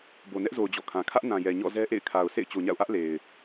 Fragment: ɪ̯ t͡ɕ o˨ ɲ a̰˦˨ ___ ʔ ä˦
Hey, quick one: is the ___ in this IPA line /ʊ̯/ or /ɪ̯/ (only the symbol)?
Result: ʊ̯